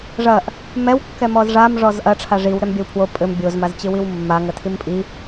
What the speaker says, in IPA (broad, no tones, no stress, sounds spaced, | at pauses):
ʐ ɐ ʔ | m ɛ w kː ɛ m ɔ z ʐ a m ʐ ɔ z ʔ ɐ ʈ͡ʂʰ a ʐ i w ɾ ɛ m bʲ ɐ w pʰ w o pʼ ɘ m bʲ o z m a z t͡ɕ ɨ w i w mː a ŋ ɐ tʰ i m pʼ i